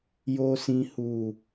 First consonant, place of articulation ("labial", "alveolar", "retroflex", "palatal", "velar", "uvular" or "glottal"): palatal